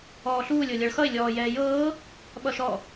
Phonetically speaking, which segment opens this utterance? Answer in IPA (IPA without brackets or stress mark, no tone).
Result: ɔː